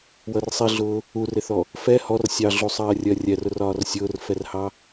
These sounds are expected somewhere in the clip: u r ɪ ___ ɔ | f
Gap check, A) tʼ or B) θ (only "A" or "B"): B